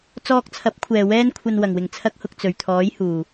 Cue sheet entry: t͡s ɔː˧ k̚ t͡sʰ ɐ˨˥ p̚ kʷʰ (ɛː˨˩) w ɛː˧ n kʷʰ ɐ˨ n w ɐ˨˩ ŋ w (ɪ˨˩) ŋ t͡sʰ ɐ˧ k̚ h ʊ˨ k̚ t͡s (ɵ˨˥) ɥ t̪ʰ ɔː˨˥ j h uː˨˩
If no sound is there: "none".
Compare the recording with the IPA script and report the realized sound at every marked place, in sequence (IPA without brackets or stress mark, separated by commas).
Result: ɛː˨˩, ɪ˨˩, ɵ˨˩